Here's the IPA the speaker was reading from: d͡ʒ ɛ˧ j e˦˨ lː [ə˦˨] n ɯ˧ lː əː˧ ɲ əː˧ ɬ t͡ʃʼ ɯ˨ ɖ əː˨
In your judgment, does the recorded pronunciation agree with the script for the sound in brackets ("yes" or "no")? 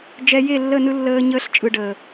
yes